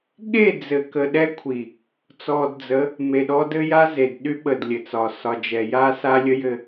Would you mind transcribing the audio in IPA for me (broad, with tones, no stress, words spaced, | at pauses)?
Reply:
ɠe˦˨d͡zɘ˨kə˨ ɗɛ˦kʷʰi˨ | t͡sɔ˨dd͡zə˨˦ | me˨ɗɔ˦ dɘ˦ja˦ze˨d ɗy˦ɓə˨dlʲɘ˨t͡sɒ˨ sɒ˨d͡ʒɛ˨ja˦ sa˦lʲə˦jɘ˦